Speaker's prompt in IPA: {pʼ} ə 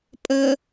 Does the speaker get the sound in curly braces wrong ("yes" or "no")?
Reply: no